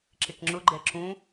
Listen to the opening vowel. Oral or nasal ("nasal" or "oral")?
oral